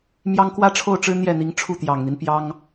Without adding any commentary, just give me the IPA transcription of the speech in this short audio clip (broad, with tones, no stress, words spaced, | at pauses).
mjɑ˥ŋ kwä˥ʈ͡ʂʰo˥˩ʊ̯ʈ͡ʂɻ̩˥ n̪jɛ˥˩ n̪i˧˥ŋʈ͡ʂʰu˥˩t̪jɑ˨˩ŋn̪i˦n pjɑ˥ŋ